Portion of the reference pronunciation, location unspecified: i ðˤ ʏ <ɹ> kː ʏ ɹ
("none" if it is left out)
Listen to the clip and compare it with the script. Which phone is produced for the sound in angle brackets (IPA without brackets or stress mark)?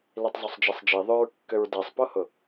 ɹ